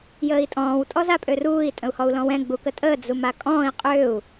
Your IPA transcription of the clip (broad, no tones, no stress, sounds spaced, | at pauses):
j əː i̯ tʼ ɔ̃ː w tʼ ɔ z a pʼ ø r uː i̯ tʼ ə̃ u̯ h ɔ u̯ l ɔ̃ w ɛ̃ ɡ͡b u k ə tʼ əː d͡z u m a kʼ ɔ̃ː i̯ qʼ ø u̯